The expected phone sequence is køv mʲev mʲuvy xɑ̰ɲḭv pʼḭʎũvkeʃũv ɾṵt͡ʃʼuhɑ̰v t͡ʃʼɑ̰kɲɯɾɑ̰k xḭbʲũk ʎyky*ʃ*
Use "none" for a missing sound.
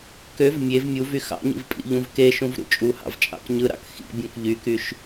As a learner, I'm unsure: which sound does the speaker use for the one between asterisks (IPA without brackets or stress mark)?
ʃ